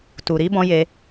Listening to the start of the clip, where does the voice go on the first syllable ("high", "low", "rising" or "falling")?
low